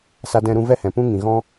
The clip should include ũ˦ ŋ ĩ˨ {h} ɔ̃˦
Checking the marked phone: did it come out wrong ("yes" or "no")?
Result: yes